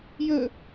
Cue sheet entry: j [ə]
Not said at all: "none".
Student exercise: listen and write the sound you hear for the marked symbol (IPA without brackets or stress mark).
ə